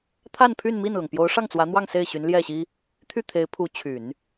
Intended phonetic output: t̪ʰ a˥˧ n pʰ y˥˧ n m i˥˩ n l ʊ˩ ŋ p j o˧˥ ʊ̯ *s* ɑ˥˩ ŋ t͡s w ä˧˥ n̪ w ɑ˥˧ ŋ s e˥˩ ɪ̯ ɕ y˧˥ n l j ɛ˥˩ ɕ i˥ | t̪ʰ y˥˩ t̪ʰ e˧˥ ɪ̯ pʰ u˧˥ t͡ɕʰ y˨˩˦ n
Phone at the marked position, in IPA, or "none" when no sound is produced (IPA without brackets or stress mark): ʂ